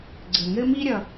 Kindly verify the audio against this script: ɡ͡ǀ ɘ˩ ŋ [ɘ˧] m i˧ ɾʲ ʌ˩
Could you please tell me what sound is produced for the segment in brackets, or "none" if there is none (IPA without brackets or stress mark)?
ɘ˧